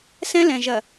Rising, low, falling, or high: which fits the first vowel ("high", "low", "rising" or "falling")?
high